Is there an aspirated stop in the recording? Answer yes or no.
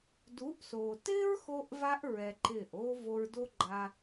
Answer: no